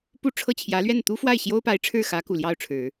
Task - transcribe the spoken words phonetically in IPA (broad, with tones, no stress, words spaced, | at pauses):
pu˥˧ʈ͡ʂʰɤ˥˩t͡ɕʰjä˧˥lɥɛ˥˩n t̪u˥fwa˥˩ɪ̯ ɕjo˥ʊ̯pa˧˥ɪ̯ʈ͡ʂʰɻ̩˥˩xä˧˥ ku˨˩ljɑ˥˩ʊ̯ʈ͡ʂʰɻ̩˨˩˦